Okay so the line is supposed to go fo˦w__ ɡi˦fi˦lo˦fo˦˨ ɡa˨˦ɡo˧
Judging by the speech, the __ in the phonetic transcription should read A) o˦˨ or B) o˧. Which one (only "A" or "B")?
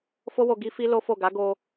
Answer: B